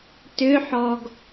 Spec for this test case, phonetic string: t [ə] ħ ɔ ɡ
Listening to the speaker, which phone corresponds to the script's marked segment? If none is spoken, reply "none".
ʏ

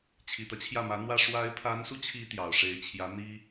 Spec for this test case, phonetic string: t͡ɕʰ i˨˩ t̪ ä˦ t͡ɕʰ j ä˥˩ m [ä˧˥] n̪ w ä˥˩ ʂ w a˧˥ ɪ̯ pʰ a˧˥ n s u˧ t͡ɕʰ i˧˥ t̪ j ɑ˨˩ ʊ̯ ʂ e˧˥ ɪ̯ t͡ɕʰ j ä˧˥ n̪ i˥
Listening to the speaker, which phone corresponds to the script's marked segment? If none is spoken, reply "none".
ä˧˥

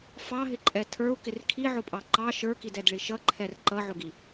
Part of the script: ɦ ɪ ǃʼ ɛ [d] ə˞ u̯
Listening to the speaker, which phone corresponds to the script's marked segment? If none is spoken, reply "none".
tʰ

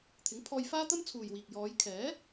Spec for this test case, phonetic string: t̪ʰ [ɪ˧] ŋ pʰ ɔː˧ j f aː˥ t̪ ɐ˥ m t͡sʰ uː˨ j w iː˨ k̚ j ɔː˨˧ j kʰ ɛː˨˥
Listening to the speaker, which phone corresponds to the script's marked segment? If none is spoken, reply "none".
ɪ˨˥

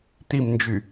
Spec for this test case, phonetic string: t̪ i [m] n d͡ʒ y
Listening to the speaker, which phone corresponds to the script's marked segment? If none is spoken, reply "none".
m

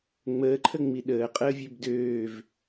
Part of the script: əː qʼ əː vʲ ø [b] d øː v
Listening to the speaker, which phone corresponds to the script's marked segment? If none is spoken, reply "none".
b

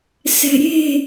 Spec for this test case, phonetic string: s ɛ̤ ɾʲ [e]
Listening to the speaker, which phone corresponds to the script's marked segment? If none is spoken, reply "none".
e̤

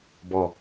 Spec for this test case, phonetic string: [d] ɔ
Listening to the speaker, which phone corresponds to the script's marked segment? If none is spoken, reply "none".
b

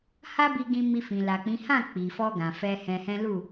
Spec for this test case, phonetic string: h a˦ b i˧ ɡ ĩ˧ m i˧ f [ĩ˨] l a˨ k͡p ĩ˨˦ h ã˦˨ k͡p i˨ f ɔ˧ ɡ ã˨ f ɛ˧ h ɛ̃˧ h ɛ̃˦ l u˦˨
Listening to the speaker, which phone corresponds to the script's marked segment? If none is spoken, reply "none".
ĩ˨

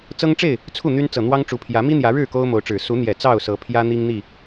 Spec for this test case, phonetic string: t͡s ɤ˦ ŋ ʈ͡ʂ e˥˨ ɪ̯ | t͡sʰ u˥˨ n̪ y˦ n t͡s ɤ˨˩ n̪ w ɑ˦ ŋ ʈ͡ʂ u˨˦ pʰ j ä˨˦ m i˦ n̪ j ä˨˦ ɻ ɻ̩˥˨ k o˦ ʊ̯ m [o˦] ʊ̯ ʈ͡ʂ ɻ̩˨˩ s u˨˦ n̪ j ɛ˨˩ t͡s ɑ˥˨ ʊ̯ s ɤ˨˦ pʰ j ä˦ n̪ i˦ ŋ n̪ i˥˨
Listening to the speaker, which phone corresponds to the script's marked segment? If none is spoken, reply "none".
o˨˦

